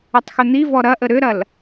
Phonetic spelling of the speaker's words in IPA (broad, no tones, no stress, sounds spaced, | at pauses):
ə tˤ x ʏ n̪ i v ɔ ɾ ɐ ʔ ə ɾ ʏ ɾ ɐ l